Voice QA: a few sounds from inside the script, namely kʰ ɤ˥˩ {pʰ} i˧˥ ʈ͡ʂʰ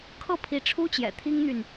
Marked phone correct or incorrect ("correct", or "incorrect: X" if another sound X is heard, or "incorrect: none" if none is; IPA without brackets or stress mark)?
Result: correct